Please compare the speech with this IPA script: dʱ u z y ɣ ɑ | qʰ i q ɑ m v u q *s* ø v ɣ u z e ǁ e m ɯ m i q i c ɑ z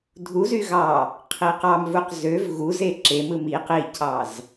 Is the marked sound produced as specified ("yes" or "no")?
no